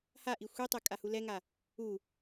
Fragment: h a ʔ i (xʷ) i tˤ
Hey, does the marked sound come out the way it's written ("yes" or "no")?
yes